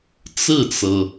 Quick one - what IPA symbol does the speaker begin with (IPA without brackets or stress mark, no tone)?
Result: t͡s